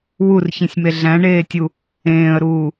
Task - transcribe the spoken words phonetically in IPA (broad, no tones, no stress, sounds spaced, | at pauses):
w u r ç ĩ sʲ m e ɮ æ̃ ɳ eː tʲ u | ẽː ə̯ ɾ uː